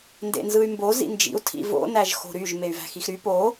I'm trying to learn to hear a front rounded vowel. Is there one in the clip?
yes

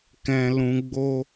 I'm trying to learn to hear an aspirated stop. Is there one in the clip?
no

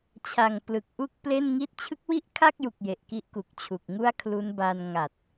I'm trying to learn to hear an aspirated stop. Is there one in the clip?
yes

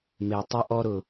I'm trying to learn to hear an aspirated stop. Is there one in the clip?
no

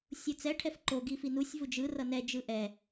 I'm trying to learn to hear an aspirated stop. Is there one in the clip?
yes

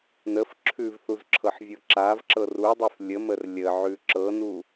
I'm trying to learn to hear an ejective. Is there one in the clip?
no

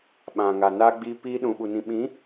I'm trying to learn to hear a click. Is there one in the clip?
no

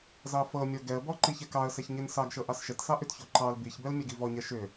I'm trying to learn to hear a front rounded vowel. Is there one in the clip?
yes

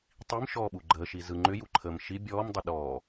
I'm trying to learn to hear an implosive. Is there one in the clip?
yes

